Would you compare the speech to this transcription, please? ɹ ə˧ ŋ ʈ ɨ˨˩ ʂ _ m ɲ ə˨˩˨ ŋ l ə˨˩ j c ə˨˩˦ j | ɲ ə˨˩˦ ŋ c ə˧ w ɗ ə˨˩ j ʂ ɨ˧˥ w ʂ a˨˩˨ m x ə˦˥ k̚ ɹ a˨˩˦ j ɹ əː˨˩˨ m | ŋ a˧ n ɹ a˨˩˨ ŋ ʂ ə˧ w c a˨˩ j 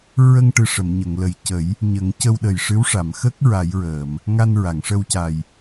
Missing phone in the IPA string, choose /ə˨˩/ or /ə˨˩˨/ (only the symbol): ə˨˩˨